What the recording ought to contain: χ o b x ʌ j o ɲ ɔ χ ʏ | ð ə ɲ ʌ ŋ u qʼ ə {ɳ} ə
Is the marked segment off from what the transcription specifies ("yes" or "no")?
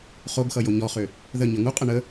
no